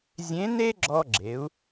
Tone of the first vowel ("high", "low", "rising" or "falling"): rising